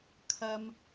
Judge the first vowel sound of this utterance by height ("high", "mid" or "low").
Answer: low